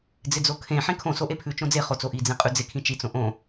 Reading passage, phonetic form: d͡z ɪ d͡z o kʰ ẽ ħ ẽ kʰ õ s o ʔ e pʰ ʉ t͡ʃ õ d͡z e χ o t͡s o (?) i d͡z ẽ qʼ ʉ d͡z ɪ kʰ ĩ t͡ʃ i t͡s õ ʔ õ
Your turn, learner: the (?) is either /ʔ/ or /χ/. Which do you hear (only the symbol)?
ʔ